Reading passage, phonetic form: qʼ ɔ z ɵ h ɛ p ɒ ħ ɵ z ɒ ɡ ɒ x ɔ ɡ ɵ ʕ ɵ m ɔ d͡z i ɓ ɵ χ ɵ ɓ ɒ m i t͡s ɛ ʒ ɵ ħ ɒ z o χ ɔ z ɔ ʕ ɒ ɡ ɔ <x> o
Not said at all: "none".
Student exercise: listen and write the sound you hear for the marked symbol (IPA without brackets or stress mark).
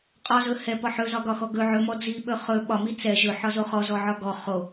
χ